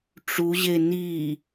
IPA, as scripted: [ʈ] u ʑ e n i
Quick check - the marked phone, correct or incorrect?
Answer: incorrect